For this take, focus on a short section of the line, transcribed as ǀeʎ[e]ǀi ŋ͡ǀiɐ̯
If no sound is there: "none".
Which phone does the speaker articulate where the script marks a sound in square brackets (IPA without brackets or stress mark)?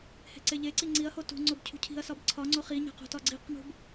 e